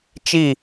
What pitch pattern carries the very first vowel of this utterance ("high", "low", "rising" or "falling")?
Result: falling